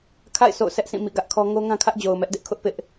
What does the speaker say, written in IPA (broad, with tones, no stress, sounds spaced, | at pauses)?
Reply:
kʰ a̰˦˨ ɪ̯ sʰ o̰˦˨ ʊ̯ s ɛ˦ ʔ sʰ ĩ˦˨ m ḭ˦˨ ɡ ä˦ ʔ kʰ ɔ˦ ŋ o˦ ŋ ã˦ kʰ ä˦ ʔ d͡ʑ o˨ ʊ̯ m ɛ˦ ʔ d ɪ˦ ʔ kʰ ʊ˦ ʔ p ɪ˦ ʔ